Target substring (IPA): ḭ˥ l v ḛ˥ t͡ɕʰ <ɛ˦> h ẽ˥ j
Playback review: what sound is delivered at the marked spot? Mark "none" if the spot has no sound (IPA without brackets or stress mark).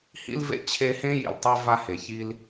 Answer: e˦